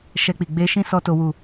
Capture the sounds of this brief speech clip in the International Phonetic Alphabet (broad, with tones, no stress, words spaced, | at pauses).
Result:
ʃɛ˧k͡pi˨ ɡ͡be˧ʃĩ˦sɔ˧ to˦wu˦˨